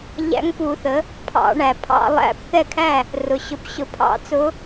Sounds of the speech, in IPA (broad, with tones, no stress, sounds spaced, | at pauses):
ʎ æ̰˧˥ ŋ p u˨˩˦ θ ə˩˥ | pʰ ɑ̰˨˩˦ ɳ æ˩ pʰ ɑ̰˨˩˦ lˠ æ̰˨˩˦ p θ ɛ˥˩ kʰ æ˥˩ | r ʊ˩ ɕ ʊ˨˩˦ p ɕ ʊ˨˩˦ pʰ ɑ̰˨˩˦ t͡s ʊ˧˥